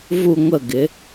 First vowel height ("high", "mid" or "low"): high